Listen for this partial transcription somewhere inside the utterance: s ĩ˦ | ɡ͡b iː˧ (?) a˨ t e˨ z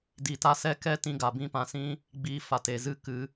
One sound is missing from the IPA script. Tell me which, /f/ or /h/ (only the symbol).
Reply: f